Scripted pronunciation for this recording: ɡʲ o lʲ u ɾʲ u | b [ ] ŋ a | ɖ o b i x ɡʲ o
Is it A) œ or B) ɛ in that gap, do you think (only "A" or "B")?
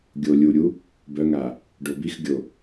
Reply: A